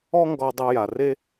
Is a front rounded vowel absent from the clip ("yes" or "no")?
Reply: no